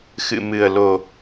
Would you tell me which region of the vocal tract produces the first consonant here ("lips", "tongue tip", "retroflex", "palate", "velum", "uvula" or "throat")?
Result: velum